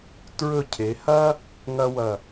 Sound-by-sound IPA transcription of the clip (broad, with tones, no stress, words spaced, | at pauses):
tɹɵ˧˩cʰe˩˧hɐ˥ | ŋɐ˥wɐ˧˩